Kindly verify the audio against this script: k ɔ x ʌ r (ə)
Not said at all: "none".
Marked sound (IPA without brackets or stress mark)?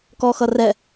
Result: ɛ